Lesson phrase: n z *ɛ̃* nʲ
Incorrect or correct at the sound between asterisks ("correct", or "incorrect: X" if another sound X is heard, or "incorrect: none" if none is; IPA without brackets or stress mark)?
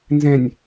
correct